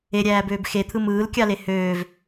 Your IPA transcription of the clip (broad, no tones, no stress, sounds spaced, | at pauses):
e ɾʲ æː b øː b x e t̪ʰ ɯ m ɯː l kʲ ɑ l e h øː v